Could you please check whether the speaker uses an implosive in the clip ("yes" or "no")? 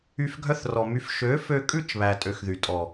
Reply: no